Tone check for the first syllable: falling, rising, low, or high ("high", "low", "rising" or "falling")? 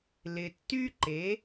low